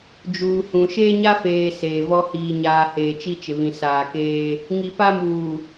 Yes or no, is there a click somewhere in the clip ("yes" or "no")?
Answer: no